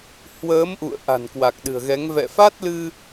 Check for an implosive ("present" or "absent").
present